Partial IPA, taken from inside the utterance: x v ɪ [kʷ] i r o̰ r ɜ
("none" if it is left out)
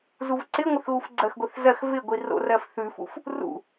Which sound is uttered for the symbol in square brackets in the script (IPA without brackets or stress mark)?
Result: ɡʷ